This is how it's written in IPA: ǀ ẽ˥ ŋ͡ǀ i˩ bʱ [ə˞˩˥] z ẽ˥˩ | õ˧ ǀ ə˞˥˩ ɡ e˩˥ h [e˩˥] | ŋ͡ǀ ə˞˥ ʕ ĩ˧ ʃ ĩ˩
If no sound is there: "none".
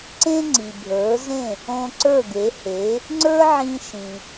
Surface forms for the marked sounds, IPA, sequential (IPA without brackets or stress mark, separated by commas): ə˞˩˥, e˩˥